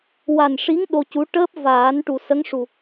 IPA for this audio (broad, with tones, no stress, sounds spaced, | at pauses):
w a˨˩ n ʂ i˧˥ ŋ ɗ o˧ c u˧˥ ʈ əː˦˥ p̚ v aː˨˩˦ n ʈ u˨˩ s ə˧˥ ŋ ʂ u˨˩